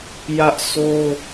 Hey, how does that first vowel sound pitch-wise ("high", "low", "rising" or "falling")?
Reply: high